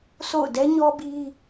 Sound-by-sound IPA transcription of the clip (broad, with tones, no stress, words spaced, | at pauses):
sʰo̰˦˨ʊ̯ dɛ˦ɲɔ˦bi˦